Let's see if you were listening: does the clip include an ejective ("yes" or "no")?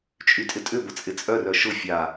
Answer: yes